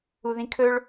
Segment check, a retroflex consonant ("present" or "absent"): present